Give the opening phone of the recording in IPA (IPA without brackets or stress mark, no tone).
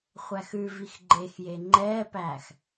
χʷ